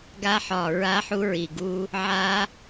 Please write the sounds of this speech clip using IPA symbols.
ɡ a˦˥ ħ ɒ˧˩ ɹ a˦˥ ħ u˦˥ ɹ i˧˩ ɡ u˦˥ | ʕ a˦˥

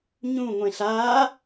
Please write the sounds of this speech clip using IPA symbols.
ɲ ũ ŋʷ ẽ ɬ aː

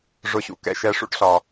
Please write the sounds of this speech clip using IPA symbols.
ʐ ʊ˩ ɕ ṵ˩ k ɛ̰˩ ʃ ɛ˩ ʂ ṵ˦ ʈ ɬ ɒ˩

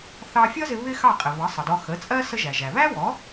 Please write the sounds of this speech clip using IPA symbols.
θ ɑ˧ fʲ ʌ˥ z ɪ˧ β ɪ˥ x ɑ˥˩ qʼ ɪ˩ β ʌ˩˥ sˤ ə˩ d ɔ˧ x ə˩˥ t͡sʼ ɜ˥ s ə˧ ʒ æ˩ ʒ æ˩ β æ˥ w ɔ˩˥

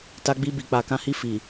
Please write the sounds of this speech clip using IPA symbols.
t a˧ ɡ͡b i˧ b i˨ k͡p a˨ k ã˨˦ h i˧ f i˨

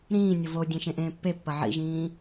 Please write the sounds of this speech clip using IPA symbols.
ɾ ĩː nʲ o v o dʲ ẽ ʃ ẽ ʔ ẽː pː e pː ɐ ʕ ḭ ʒ ĩː

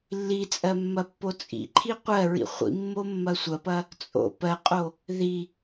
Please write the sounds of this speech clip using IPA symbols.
lː i t͡sʼ ɜ mː ɐ pː o t͡sʼ ḭ ǃʰ i qʷ ɜ ɹ ḭ χʷ ḭ mː o mː ɐ sʷ ɐ p ɐ | t͡sʼ o̰ p ɜ qʼ o | ð i

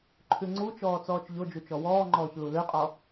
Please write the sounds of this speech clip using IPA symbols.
ǃʰ ʉ ŋ͡ǀ u t͡ʃ ɔː t͡s ɔː t͡ʃ ʎ o d͡ʒ u t͡ʃ ɔ w ɔː ŋ͡ǃ ɔː ç l u l ø qʼ ɔ

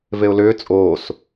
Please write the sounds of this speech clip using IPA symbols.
v e ʊ̯ l ʏː t͡sʼ oː s

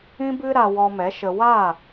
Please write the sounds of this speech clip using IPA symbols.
ĩ˦ b ɨ˦ ɾ a˧ w ɔ˧ m ɛ˨˦ ʃ ə˧ w a˦˨

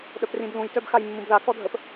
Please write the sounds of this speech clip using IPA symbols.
ɗ œ p r ĩ b l ũ j t œ b x a j mː ũ b ð a k ɔ dʱ ə p

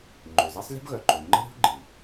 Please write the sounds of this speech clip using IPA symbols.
ŋ͡ǃ ø˩ z ɛ˥ sˤ lʲ ə̤˥ b ɣ œ˩ ǃ ø˩ ŋ͡ǃ ə̤˥ ɾʲ ṳ˥ ɡ͡ǃ i˩

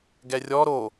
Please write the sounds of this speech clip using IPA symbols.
ɡ ɛ rʲ ɔ ɾ o

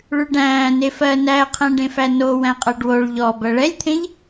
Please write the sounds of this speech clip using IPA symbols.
ɭ ʉ ɖ æ̃ː n e f ɜ n æ ə̯ qʰ æ̃ ɖ ẽ f æ n o w æ̃ qʼ ɜ ɖ w o ɭ ʎ ɔ b ɜ ɭ ɛ lʲ t̪ʰ ẽ ʎ

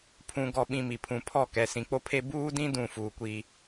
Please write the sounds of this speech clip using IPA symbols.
pʰ ũ˨ ɡ ɔ˨ ɓ ĩ˨ m i˨ pʰ ũ˨ pʰ ɔ˦˨ k ɛ˨ s ĩ˨ k͡p o˦ pʰ e˦ b uː˦ d ĩ˦ d ũ˦˨ f uː˨ kʷ i˦

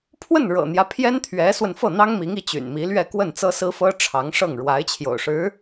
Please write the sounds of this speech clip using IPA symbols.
pʰ w ə˥˩ n ɻ ɤ̰˨˩ n̪ j ä˦ pʰ j ɛ˥ n t̪ʰ ɥ ɛ˧˥ s w ə˧ n f ɤ˥˩ n̪ ɑ˥ ŋ m i˧˥ ŋ i˧˥ t͡ɕ y̰˨˩ n m i˧˥ l ɥ ɛ˥˧ k w ə˥˩ n t͡s ɤ˥ s ɹ̩˥ f ɤ˥ ʈ͡ʂʰ ɑ˧˥ ŋ ʂ ɤ˥˩ ŋ ɻ w a˧˥ ɪ̯ t͡ɕʰ j o̰˨˩ ʊ̯ ʂ ɻ̩˧˥

